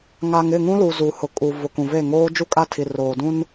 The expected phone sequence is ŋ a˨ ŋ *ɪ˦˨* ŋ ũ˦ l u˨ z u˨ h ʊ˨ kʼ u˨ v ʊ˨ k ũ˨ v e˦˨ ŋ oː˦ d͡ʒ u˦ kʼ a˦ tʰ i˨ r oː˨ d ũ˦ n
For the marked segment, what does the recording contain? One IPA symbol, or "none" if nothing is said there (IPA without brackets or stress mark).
ɪ˦˨